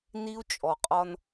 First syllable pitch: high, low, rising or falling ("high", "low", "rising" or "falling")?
high